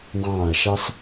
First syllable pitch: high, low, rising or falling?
falling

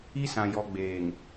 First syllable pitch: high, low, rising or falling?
high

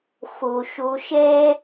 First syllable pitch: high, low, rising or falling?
low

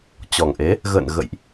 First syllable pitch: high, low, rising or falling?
low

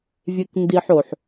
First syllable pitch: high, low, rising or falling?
high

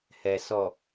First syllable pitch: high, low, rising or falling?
low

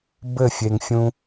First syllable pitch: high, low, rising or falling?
falling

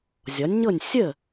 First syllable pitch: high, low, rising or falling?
rising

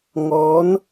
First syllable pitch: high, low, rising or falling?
rising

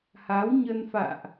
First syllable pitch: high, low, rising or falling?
rising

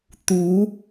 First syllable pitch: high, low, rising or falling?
rising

